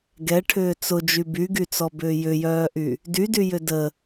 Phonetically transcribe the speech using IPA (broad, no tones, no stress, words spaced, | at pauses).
ɡɛʈʰʏː t͡sʊd͡ʒy byɡyt͡sɔbʏː jʏjœːʔy | dydyjʏ də